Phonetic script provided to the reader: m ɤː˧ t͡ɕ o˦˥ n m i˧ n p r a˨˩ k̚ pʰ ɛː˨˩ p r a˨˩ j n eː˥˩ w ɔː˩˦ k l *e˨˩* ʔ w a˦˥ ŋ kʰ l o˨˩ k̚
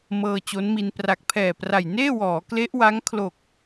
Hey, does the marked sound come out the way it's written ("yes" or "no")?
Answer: no